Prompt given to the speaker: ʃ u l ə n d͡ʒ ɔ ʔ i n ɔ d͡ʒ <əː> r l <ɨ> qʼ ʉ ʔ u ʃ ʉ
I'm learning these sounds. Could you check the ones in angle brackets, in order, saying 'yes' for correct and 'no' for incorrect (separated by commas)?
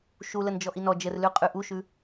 no, no